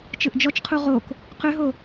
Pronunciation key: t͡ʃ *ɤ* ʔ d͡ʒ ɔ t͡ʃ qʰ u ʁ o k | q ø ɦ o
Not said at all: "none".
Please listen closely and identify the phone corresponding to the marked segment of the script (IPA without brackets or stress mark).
ɯ